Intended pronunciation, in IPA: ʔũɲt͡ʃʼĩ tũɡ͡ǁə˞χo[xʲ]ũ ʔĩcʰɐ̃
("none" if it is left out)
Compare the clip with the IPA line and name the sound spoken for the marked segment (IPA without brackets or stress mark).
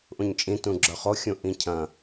xʲ